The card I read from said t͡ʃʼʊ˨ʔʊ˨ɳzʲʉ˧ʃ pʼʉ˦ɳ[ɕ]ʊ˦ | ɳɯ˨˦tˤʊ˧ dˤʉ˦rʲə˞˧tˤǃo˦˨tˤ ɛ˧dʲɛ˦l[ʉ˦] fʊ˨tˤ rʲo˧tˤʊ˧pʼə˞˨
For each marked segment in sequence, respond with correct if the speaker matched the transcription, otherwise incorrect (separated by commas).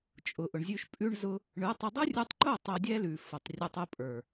incorrect, incorrect